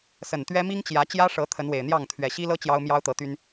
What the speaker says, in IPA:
s ə˨˩ n t̪ ɥ ɛ˦ m i˦ ŋ t͡ɕ j ä˨˦ t͡ɕ j ä˦ ʂ ɤ˨˦ t̪ʰ ə˨˦ n w e˨˩ ɪ̯ n̪ j ɑ˥˨ ŋ t̪ʰ ɥ ɛ˨˩ ɕ i˦ l ɤ˦ t͡ɕ j ɑ˦ ʊ̯ m j ɑ˦ ʊ̯ t̪ ɤ˨˦ t̪ y˦ n

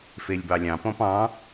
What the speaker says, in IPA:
f e lʲ b ɑ lʲ ɑ̃ p ɔ̃ p ɑ̃

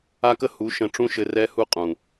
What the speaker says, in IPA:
a˦ k ə˦ h u˨˦ ʃ ə̃˧ ʈ͡ʂ ũ˦ ʃ ɘ˧ r ɛ˦ h u˦ qʼ ũ˨

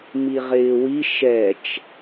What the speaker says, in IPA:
m i ʁ ɪː w i ʃ ɛ t͡ʃ

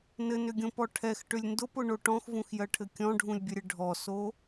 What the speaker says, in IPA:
n ɘ n ʏ ɡʲ õ p ɔ ʈʰ ɛ x ʈ ʏ lʲ n d ʊ p ʊ ɳ o ʈ ɔ̃ x v ũ x j ɜ ʈʰ ɘ kʲ ɔ̃ ɖʱ ũ lʲ bʲ ɘ ɾʲ ɘ ɖʱ ɔ s o

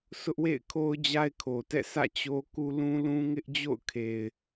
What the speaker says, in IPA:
sʰ ʊ˦ ʔ w ḛ˦˨ ɪ̯ kʰ o˦ ʊ̯ d͡ʑ a˦ ɪ̯ kʰ o˨ t ɛ̰˦˨ sʰ ä̰˦˨ t͡ɕ o˦ k u˦ l ũ˦ l ũ˦ ŋ ɪ˦ ʔ d͡ʑ o̰˦˨ ʊ̯ kʰ e˨ ɪ̯

